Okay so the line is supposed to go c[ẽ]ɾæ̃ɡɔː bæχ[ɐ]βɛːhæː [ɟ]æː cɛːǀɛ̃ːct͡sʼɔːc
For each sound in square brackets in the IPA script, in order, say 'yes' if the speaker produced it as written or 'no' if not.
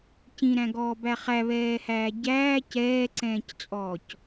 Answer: no, no, yes

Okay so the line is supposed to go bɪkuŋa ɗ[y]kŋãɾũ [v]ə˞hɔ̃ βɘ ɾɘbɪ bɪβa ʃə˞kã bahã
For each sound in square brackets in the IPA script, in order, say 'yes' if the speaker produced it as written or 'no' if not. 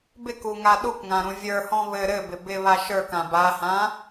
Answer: no, no

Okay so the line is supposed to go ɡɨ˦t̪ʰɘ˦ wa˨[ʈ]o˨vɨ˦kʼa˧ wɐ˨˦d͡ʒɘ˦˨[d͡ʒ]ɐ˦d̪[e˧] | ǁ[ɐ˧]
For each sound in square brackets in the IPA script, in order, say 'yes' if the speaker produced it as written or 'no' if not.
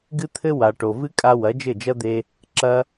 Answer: yes, yes, yes, yes

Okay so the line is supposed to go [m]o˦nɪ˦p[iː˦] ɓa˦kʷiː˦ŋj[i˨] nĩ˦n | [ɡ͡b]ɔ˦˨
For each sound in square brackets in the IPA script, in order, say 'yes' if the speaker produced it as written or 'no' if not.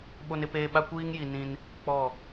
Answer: no, no, yes, no

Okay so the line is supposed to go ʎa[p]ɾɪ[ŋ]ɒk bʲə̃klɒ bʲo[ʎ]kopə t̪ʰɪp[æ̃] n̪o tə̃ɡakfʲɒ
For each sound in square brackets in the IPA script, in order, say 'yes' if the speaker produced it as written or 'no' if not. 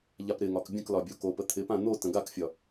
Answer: yes, yes, no, no

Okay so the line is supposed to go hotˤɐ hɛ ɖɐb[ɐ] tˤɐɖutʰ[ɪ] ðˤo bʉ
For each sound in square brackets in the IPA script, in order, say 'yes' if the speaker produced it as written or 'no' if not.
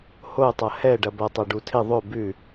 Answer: yes, yes

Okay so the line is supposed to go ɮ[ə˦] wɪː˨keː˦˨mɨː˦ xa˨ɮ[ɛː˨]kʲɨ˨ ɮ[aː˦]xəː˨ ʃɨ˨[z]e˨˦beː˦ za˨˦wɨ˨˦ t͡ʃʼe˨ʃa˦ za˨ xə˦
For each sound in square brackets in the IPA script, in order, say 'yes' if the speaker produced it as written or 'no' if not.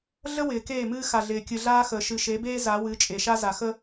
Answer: yes, no, yes, no

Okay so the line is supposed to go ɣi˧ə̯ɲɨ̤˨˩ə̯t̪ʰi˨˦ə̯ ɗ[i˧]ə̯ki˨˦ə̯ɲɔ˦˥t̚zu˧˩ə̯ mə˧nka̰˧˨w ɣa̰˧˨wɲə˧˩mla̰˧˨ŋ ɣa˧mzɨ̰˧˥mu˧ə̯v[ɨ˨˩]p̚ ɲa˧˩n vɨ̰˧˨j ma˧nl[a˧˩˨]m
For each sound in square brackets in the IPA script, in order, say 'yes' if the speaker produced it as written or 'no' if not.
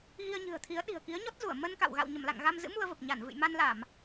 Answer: no, no, yes

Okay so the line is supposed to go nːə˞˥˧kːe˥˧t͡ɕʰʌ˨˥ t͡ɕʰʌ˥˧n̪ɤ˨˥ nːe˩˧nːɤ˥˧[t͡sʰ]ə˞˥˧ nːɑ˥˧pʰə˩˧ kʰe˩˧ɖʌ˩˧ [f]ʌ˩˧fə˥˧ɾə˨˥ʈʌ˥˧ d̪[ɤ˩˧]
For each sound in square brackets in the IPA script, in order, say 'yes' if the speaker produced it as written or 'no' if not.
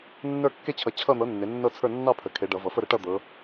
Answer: yes, no, yes

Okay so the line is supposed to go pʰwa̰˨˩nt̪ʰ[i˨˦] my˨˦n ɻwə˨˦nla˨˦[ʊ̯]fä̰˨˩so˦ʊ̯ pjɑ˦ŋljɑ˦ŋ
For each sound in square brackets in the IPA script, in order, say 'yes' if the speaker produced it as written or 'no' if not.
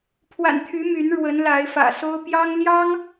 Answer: no, no

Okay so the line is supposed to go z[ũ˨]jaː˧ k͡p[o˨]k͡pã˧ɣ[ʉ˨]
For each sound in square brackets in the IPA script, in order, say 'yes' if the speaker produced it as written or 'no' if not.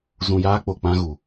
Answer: yes, yes, no

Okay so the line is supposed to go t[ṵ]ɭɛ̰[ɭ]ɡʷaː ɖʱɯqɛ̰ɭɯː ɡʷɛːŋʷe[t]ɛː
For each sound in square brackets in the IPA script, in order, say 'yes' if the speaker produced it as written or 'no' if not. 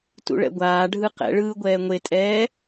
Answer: yes, no, no

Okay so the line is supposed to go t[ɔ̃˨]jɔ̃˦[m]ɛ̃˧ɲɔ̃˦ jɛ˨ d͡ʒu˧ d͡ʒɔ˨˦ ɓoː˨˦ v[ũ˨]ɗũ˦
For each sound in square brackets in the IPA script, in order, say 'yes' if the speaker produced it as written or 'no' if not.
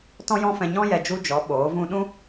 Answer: no, no, no

